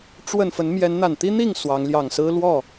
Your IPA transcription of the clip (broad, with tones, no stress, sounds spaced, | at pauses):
ʈ͡ʂ w ə˥˨ n f ə˨˦ n m j ɛ˨˦ n n̪ a˨˩ n t̪ i˦ n̪ i˥˨ ŋ s w ɑ˨˦ ŋ l j ɑ˨˩ ŋ s ɹ̩˦ l w ɔ˥˨